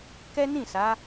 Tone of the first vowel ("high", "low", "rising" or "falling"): high